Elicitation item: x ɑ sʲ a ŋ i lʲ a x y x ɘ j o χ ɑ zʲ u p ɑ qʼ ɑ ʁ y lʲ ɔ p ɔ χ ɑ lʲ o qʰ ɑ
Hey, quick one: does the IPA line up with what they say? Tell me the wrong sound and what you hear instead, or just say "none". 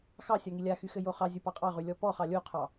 none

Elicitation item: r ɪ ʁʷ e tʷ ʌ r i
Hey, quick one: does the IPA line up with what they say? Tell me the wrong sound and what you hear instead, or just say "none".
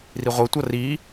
ɪ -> i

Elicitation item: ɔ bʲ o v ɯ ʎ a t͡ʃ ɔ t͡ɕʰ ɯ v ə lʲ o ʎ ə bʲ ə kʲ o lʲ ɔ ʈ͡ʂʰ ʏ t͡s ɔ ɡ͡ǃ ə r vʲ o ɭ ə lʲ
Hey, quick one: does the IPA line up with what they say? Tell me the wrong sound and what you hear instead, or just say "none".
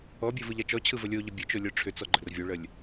kʲ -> t͡ʃ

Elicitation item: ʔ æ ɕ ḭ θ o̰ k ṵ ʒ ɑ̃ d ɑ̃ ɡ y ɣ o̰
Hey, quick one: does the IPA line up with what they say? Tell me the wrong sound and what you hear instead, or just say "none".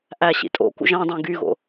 θ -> tʼ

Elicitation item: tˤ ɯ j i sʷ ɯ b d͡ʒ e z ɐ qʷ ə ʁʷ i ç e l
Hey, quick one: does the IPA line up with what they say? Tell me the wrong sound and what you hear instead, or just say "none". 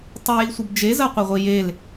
ç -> j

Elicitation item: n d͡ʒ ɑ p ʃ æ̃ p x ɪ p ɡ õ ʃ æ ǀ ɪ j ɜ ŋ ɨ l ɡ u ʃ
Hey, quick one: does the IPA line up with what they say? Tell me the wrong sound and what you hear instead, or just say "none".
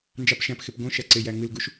ɜ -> æ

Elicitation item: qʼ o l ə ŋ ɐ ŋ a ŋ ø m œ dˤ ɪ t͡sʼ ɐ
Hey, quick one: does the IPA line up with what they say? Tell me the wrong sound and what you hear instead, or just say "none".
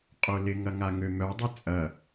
ə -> ɪ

